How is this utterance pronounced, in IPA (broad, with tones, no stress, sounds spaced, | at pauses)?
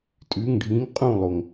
tʼ ʉ˧˥˧ ŋ ɖʱ ĩː˧˥ ŋ qʼ ũː˥˨ lˠ o˩ ŋ